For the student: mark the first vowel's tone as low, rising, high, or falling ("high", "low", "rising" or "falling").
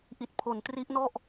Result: low